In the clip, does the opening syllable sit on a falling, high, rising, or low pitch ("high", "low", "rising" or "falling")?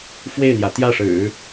falling